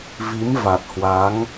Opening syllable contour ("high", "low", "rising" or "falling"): rising